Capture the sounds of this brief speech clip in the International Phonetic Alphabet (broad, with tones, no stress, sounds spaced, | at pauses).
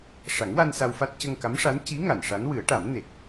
ʂ a˨˩˦ ŋ w a˧ n s a˧ w f a˦˥ t̚ c ə˧ ŋ k a˧˥ m ʂ a˧˥ n c i˧˥ ŋ a˨˩˨ n ʂ a˧˥ n w ɨ˨˩˦ ə̯ ʈ a˨˩˦ m n e˨˩ k̚